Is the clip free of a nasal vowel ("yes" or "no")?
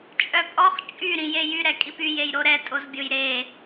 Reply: no